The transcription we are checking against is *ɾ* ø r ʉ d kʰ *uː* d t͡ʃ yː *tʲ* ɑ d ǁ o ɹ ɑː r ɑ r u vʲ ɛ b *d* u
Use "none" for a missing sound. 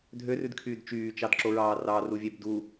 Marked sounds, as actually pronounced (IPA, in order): dʱ, yː, t͡ʃ, d

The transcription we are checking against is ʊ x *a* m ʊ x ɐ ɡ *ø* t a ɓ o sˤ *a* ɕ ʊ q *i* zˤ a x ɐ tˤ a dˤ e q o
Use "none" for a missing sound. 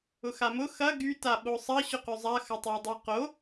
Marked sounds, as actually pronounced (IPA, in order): a, y, ɐ, y

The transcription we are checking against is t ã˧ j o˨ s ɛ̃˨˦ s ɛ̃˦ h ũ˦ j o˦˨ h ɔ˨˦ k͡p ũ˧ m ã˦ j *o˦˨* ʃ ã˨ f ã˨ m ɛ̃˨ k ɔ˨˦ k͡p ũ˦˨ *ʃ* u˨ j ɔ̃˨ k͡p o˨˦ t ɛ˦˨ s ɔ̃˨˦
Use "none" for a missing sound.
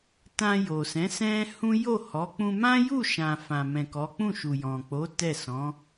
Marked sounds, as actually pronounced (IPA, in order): u˦˨, ʃ

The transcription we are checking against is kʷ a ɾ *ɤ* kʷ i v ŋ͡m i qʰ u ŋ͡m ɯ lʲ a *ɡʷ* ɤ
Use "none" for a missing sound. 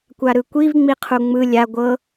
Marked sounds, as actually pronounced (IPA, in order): ɯ, ɡʷ

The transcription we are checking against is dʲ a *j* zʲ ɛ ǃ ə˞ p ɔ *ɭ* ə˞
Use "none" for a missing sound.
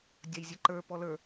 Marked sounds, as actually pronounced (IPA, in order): j, l

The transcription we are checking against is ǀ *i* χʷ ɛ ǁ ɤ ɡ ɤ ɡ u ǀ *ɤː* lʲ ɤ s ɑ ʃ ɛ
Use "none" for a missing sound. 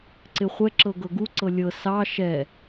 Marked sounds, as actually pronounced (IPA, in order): ɪ, ɤ

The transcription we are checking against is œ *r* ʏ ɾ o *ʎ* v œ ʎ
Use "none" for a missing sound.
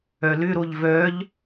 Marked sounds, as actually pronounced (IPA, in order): l, ʎ

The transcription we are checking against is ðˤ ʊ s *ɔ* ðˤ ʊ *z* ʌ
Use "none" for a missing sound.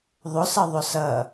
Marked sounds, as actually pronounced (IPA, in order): ʌ, s

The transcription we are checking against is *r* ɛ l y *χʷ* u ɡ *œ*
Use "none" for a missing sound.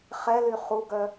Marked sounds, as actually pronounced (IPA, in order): χ, χ, œ

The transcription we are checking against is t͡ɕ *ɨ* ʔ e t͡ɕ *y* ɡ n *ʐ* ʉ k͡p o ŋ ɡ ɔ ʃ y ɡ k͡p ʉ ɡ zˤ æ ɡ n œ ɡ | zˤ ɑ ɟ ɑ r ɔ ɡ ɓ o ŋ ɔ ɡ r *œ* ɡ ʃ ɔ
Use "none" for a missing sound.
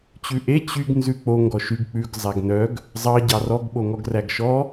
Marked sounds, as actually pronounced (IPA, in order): ʉ, y, z, æ

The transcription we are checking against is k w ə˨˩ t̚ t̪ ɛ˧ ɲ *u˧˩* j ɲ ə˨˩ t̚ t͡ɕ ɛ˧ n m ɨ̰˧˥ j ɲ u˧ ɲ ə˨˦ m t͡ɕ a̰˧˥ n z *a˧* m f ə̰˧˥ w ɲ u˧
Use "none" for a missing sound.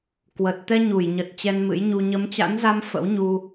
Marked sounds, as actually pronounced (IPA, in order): u˧˩, a˧

